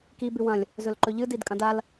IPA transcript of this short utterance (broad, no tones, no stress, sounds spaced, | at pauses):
k i b ʉ w ɐ̃ lʲ | z ɵ l ǃ ɵ ʎ ɨ d i d kʼ ɐ̃ d a l